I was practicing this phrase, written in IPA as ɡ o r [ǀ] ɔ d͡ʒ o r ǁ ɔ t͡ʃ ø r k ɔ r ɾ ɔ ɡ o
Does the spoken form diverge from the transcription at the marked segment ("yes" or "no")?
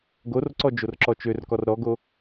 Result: no